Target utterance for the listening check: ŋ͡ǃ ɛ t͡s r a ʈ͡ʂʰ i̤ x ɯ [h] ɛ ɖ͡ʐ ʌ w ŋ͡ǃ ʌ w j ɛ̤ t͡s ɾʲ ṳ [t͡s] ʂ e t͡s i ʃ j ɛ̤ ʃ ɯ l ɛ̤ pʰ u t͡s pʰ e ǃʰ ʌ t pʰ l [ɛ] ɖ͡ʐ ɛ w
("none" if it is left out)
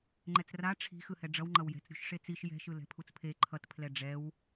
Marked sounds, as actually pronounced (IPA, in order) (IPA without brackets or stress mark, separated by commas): h, ʃ, ɛ